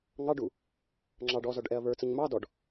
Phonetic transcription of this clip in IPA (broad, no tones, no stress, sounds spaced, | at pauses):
ŋ ɑ ɖ u | ŋ͡ǁ ɑ ɖ ɔ z ɔ ɖ ʔ ɛ ɐ̯ β ə˞ t͡s ə ɲ m ɑ d ɔ ɖ